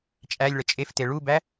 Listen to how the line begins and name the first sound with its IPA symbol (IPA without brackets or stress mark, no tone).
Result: t͡ʃʼ